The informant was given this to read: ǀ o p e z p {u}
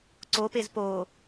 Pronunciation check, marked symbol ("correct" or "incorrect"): incorrect